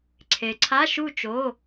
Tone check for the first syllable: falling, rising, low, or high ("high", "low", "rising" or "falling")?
low